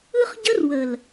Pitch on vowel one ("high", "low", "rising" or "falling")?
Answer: high